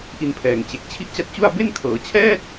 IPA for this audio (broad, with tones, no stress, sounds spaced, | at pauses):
ʔ i˧ n pʰ ɛː˨˩ ŋ t͡ɕ e˨˩ k̚ t͡ɕʰ i˦˥ ʔ t͡ɕ a˦˥ t̚ t͡ɕ u˥˩ a̯ b e˥˩ n kʰ ɤː˩˦ t͡ɕʰ ɛː˥˩ t̚